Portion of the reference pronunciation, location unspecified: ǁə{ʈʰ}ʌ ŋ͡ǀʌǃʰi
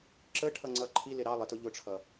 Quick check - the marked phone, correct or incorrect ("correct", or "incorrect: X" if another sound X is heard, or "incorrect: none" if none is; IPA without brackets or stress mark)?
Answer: correct